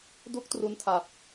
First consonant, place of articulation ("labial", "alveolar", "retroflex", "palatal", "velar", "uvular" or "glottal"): alveolar